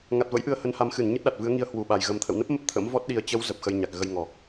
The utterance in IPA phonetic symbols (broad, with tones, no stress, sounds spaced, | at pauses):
ŋ a˨˩ t̚ v ə̰˧˥ j ʔ ɨ˨˦ ə̯ h ə˨˦ n h a˨˦ m x ɨ˧˩ n ɲ ɨ˦˥ t̚ ɗ a˨˩ t̚ v ɨ˨˦ ə̯ ŋ i˧ ə̯ h w u˧˩ ɓ a˨˩ j ɣ ə˨˩ m t̪ʰ ə̰˧˨ w n ə˦˥ p̚ m ə˦˥ p̚ t̪ʰ ə̰˧˥ m v ɔ˦˥ t̚ ɗ i˧ ə̯ t͡ɕ ə˨˦ w z ə˨˩ p̚ x ə˧ j ɲ a˨˩ k̚ ɣ ə˧ j ŋ ɔ˨˩